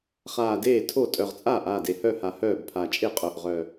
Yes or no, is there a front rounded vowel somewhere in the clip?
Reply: yes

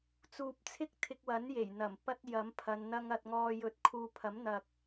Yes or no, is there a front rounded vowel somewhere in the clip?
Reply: no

